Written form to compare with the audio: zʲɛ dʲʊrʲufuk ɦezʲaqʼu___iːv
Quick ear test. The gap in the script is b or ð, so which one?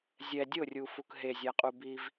b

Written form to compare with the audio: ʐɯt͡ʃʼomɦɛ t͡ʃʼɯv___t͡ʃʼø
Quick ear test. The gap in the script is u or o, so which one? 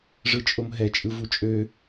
u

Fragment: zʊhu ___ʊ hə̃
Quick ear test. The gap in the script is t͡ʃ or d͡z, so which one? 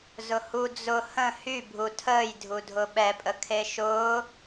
d͡z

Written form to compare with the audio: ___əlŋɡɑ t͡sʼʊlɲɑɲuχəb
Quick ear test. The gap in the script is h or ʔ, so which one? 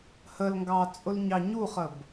h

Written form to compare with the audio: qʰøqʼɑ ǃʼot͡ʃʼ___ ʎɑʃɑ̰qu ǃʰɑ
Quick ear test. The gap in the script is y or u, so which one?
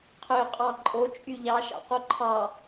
y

